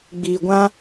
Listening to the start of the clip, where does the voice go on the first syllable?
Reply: low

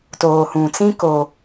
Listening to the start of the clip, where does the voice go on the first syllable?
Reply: low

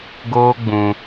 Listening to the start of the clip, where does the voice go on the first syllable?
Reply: high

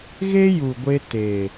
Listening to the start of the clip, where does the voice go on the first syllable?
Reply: high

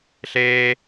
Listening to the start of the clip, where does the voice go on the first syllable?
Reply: low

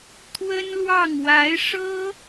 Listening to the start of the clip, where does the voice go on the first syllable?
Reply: high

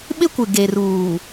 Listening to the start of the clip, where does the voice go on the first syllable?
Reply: high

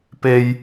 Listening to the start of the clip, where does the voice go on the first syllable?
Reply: high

